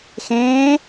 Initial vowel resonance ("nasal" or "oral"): nasal